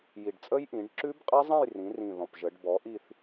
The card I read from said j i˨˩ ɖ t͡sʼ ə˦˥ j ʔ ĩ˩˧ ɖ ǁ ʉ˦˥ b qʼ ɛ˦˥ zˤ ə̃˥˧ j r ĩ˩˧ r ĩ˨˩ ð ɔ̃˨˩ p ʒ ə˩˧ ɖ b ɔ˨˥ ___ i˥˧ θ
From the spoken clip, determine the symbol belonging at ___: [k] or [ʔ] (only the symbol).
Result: ʔ